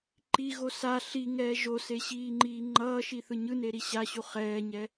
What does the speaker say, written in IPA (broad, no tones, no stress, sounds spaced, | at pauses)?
ǃ i ɣ o s a ɬ i ŋ ɛː ʒ o s e ɕ iː ŋ͡ǃ iː ŋ͡ǃ ʌː ʃ i θ ɯ ɲ ɯ n e ɾ i ɕ a ɕ u χ ɛː ɲ ɛ